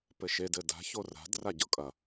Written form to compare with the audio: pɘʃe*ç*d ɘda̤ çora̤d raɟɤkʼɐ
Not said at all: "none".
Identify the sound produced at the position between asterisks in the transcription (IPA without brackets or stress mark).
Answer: none